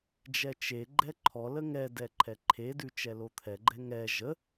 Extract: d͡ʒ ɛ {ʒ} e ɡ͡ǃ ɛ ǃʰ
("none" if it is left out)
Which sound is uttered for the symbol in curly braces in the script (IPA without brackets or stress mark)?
t͡ʃ